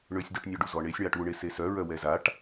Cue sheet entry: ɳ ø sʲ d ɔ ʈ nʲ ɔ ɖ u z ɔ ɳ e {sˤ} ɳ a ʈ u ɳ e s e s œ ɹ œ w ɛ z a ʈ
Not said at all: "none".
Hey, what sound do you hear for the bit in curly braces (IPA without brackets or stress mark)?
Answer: sʲ